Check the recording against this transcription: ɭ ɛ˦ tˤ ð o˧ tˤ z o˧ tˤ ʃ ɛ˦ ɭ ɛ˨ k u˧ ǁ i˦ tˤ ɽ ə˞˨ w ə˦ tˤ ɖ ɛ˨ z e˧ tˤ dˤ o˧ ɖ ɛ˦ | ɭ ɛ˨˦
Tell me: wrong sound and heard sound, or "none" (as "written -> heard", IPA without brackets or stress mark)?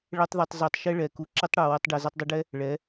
none